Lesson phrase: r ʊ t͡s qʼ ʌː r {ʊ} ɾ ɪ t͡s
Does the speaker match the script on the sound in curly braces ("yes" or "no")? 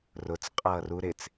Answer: no